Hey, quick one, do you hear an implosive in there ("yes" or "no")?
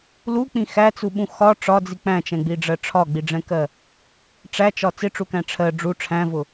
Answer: yes